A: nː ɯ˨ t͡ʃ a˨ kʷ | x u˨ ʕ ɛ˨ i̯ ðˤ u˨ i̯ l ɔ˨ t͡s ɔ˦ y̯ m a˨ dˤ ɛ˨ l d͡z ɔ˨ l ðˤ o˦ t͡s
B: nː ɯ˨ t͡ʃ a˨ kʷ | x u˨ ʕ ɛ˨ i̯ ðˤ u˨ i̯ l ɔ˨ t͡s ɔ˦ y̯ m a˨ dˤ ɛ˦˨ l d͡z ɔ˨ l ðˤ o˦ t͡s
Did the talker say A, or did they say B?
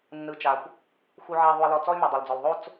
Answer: A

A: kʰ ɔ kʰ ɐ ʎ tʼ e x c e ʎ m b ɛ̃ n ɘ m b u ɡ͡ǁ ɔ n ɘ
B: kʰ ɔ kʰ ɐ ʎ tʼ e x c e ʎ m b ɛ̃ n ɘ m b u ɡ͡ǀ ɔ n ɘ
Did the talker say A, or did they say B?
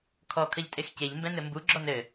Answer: A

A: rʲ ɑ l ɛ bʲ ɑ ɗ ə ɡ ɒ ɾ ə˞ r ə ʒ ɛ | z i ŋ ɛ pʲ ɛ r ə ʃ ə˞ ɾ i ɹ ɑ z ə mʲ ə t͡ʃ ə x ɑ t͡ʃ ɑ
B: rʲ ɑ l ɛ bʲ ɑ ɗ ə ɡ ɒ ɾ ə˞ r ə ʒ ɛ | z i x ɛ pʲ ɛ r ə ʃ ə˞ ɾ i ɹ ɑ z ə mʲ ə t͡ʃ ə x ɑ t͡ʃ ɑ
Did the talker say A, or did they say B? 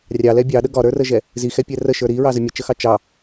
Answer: B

